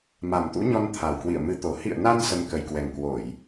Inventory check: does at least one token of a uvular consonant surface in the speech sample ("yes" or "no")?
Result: no